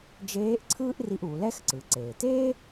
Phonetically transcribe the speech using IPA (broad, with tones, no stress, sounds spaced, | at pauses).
d͡ʒ eː˧˥ ʔ ǀʰ ɯː˥ ʔ r i˧ ʔ u˩˧ l ɛ˥ x ǀ ɯ˩˧ ǀ eː˩ t eː˥